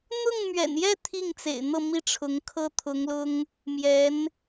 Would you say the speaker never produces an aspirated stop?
no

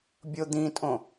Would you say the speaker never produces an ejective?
no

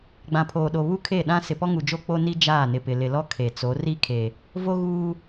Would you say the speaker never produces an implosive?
no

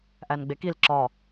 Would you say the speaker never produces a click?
no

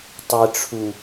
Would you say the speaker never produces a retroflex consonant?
no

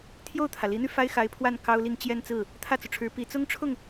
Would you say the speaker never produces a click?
yes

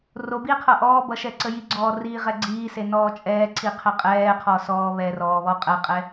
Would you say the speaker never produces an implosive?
yes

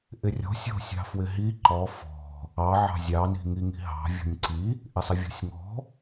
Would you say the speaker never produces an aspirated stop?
yes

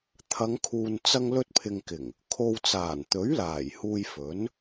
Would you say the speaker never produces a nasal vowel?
yes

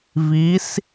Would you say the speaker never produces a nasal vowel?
yes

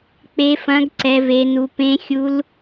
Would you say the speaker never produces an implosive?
yes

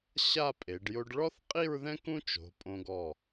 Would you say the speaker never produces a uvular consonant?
no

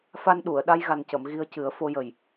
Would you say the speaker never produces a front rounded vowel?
yes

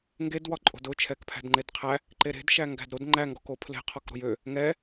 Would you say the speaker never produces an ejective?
no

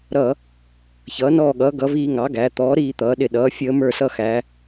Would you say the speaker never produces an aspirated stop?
yes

